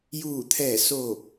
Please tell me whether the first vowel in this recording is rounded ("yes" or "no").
yes